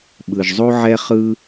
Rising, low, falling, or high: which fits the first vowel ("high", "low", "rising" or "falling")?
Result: low